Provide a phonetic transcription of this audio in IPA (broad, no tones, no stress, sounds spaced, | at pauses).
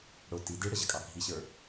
ɽ ʊ t i d i ɽ ə ʑ ə kʼ ɑ ɡʱ i ɕ ə˞